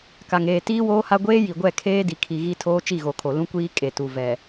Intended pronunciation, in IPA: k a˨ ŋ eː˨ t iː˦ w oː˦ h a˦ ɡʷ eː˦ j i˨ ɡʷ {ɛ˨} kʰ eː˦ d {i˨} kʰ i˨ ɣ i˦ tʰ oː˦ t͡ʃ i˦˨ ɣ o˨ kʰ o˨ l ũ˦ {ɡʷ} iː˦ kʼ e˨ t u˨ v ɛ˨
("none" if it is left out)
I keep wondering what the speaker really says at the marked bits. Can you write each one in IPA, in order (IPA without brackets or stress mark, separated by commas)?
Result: ɛ˦˨, i˨, kʷ